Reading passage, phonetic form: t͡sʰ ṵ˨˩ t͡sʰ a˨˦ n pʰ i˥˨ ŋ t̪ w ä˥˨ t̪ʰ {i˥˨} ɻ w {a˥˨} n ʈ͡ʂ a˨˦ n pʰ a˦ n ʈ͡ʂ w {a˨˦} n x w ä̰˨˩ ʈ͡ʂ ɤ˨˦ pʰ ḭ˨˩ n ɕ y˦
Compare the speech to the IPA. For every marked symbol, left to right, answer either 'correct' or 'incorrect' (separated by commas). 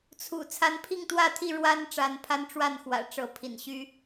correct, incorrect, incorrect